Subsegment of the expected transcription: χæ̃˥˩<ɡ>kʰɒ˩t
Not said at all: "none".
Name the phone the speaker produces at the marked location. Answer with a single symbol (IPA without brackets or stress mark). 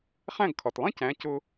ɡ